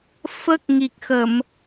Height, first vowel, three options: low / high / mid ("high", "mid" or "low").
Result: mid